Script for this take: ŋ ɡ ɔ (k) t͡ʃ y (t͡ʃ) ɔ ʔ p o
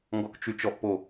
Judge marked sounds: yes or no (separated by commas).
yes, yes